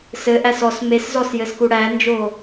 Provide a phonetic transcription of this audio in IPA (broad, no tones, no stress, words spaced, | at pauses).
sɘʔæs ɔs meszɔsjɘsku ɽænd͡ʒoː